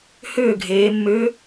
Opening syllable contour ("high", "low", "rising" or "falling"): falling